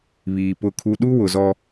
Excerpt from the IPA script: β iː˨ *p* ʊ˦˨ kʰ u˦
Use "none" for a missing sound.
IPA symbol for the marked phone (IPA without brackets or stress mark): p